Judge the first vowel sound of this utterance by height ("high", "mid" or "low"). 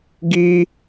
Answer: high